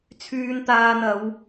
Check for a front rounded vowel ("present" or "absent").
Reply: present